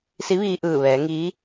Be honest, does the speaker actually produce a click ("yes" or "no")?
no